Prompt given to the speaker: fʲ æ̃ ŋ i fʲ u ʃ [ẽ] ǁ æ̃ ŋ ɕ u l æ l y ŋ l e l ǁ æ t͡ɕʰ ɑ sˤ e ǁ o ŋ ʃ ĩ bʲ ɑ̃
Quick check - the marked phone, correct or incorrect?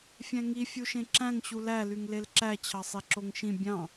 correct